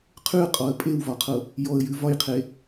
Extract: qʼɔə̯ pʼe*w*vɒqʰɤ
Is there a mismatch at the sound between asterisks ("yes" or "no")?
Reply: no